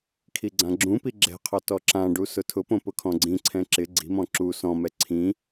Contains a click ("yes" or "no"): yes